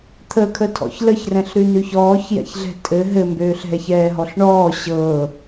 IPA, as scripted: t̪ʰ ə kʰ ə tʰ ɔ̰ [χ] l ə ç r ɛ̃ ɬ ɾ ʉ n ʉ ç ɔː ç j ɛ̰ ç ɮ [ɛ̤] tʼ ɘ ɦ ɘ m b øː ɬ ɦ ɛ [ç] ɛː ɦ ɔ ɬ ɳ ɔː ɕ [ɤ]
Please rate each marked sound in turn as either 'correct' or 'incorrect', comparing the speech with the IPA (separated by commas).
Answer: incorrect, correct, correct, correct